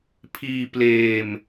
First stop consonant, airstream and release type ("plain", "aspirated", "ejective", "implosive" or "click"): aspirated